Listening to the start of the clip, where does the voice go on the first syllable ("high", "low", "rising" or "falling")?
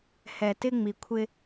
low